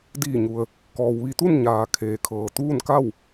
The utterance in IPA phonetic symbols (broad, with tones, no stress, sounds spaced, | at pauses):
d iː˧˩ ɲ u˩ ə̯ | k ɔː˩ w ʋ i˧ t̪ u˥˨ n ɲ aː˩ kʰ eː˩ kʰ ɤː˩ t̪ uː˥˨ n k a˥˨ w